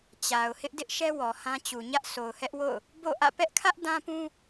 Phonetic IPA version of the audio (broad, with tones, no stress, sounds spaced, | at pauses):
t͡ɕ a˨ ʊ̯ h ɪ˦ ʔ d ɪ˦ ʔ ʃ ɛ˦ w ɔ˨ h ã˦ t͡ɕ u˨ ɲ ä˦ ʔ s o˨ ʊ̯ h ɛ˦ ʔ w o̰˦˨ ʊ̯ | b o̰˦˨ ʔ ä̰˦˨ p ɛ˦ ʔ kʰ ä˦ ʔ d ã˦ p ũ˦